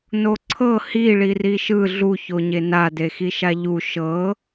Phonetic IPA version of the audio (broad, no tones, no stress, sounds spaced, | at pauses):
n o ǀʰ ɤ h i ɭ i r i ʃ ɯ ɮ u ç o ɲ e n a d e x i ʃ a ʎ u ʃ ɤ